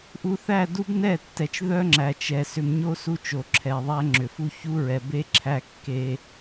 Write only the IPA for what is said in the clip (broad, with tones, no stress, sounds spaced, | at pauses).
ʔ u˨ θ æ˦˨ d u˦ b n ɛ˦˨ tː ɛ˨ t͡ʃ ð œ˦ ŋ͡ǁ æ˨ t͡ʃ ɛ˨ s ʏ˨ m ɲ o˦ s u˦ t͡ʃ o˨ ǁʰ ɛ˨ ðˤ æ˦ ŋ͡ǁ ʏ˨ f u˦ ç u˦ ɹ ɛ˨ b e˦ ǁʰ æ˦ kː e˦